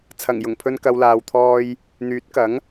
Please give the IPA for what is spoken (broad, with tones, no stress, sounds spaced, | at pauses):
t͡sʰ ɐ˨˩ ŋ j ʊ˨˩ ŋ pʰ ɵ˧ n k ɐ˨˧ w l aː˧ w t̪ʰ ɔː˥ j | n̪ yː˨˥ t̚ k ɐ˨˥ ŋ